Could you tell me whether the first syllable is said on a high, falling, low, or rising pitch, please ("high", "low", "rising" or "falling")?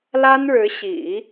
high